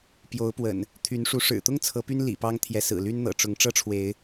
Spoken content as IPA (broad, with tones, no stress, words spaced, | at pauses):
pjo˨˦ʊ̯pwə̰˨˩n | t̪ʰy˨˦nʂu˨˦ ʂɻ̩˨˩t̪ʊ˦ŋ t͡sʰɤ˨˦py˦n lḭ˨˩pɑ˦ŋ t̪ʰjɛ˨˦sɹ̩˨˩ly˦n n̪ɤ̰˨˩ʈ͡ʂʊ˨˦ŋ ʈ͡ʂɤ˦ʈ͡ʂʰwe˨˦ɪ̯